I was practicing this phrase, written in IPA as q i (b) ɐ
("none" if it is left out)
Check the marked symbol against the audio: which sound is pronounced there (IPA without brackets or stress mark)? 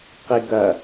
ɡ